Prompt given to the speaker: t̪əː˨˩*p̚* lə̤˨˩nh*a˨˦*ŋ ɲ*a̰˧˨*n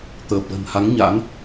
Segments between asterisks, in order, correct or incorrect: correct, correct, incorrect: a̰˧˥

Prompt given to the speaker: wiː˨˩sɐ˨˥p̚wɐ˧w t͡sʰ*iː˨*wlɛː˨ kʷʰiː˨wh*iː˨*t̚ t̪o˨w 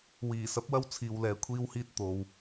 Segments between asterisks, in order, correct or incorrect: correct, correct

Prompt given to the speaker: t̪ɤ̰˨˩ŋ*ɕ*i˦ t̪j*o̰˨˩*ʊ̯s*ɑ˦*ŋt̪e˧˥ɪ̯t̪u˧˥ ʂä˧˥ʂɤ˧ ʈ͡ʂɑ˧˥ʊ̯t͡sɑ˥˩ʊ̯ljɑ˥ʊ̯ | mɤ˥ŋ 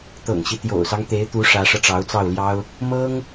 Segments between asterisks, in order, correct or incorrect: correct, correct, correct

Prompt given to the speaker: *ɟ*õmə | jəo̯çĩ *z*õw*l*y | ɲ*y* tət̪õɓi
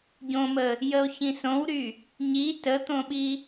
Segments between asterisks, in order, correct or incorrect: correct, incorrect: s, incorrect: ɾ, incorrect: i

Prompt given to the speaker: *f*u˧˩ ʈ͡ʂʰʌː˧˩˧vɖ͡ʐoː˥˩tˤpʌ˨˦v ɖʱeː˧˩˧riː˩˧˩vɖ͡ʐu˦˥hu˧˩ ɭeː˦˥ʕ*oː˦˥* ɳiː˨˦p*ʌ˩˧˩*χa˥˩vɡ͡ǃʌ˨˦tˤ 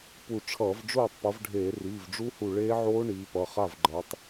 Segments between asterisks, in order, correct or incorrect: incorrect: p, correct, correct

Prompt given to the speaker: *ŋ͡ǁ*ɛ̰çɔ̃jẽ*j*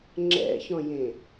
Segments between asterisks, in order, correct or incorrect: correct, incorrect: none

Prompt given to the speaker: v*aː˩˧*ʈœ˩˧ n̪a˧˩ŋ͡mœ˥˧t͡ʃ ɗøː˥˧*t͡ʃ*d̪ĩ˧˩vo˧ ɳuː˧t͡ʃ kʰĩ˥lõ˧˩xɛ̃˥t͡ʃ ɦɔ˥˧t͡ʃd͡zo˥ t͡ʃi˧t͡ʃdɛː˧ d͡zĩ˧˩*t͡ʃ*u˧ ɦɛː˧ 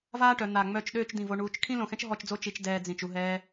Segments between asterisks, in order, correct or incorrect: incorrect: aː˥, correct, correct

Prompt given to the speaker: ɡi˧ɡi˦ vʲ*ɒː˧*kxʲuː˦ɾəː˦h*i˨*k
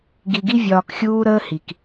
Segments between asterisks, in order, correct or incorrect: correct, correct

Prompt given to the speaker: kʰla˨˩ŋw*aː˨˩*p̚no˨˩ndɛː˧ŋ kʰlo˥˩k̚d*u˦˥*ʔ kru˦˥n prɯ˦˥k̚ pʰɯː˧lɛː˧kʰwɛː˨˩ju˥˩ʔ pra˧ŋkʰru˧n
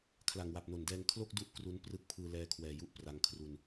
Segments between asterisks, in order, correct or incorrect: incorrect: a˨˩, correct

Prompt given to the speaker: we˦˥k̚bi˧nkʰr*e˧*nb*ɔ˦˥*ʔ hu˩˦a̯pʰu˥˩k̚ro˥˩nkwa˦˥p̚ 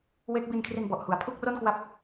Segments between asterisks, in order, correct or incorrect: incorrect: i˧, incorrect: ɔ˨˩

